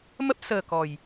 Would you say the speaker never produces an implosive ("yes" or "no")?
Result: yes